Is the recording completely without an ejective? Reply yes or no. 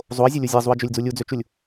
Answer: yes